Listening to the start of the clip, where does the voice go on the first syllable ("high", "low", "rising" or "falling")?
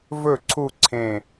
falling